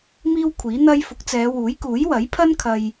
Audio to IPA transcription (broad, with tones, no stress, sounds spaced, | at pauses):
m iː˥ w kʷʰ iː˨˥ n̪ ɐ˥ j f ʊ˨˥ k̚ t͡s ɛː˨˧ w uː˨˥ j k uː˨˥ j w ɐ˨˥ j pʰ ɐ˥ n kʰ ɐ˧ j